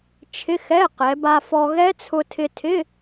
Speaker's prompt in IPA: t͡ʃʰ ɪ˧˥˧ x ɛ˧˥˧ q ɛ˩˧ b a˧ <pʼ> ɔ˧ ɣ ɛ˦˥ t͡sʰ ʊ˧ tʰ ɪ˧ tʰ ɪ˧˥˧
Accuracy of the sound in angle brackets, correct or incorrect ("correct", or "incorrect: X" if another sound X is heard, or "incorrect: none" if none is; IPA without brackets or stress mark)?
incorrect: f